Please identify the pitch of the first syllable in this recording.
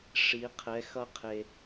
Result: rising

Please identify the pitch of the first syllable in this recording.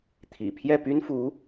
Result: low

